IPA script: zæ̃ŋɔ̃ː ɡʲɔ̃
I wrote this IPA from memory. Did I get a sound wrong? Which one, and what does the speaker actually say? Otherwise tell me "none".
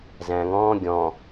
none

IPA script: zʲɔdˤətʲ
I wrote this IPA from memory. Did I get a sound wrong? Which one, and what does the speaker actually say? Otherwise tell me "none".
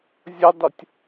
ɔ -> ʌ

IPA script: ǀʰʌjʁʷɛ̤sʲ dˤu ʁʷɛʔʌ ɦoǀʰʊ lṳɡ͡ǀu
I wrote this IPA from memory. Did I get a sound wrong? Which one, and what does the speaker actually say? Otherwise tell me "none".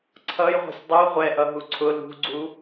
o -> u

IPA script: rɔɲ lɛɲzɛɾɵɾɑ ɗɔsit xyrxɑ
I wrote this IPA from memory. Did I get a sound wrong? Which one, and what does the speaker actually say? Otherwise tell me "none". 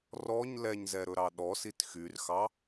none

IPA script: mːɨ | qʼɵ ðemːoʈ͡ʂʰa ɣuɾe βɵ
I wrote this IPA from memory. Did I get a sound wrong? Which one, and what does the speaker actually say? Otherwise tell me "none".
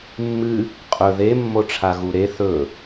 β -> θ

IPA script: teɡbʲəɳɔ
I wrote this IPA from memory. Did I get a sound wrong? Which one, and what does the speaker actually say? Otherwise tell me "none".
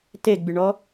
none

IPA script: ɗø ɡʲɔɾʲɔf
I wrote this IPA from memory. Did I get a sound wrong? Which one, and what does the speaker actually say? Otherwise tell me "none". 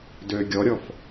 ɗ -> d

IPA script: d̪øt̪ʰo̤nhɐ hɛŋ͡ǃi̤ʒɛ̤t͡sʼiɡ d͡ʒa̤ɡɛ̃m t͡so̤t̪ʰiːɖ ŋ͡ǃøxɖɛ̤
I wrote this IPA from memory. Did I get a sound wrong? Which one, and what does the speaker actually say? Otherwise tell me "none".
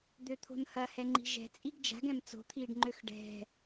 none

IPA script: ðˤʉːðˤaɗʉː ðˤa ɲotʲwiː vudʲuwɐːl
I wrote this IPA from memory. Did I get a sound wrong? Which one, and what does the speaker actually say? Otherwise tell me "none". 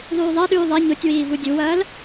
none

